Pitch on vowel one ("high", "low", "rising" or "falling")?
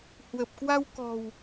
low